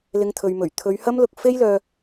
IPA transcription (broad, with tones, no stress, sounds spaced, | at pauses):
l ɪ˨˧ ŋ t̪ʰ ɵ˨ ɥ m ɵ˨˩ ɥ t̪ʰ ɵ˨˧ ɥ h ɐ˥ m l ʊ˧ k̚ f e˥ j l œː˧